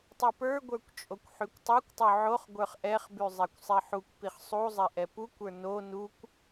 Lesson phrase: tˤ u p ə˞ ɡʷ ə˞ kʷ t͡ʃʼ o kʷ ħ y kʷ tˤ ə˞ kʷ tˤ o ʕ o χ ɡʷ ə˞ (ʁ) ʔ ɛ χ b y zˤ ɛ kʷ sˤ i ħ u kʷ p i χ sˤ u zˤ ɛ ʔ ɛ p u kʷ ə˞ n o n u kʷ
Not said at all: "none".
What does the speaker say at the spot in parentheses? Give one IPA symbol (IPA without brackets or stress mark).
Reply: χ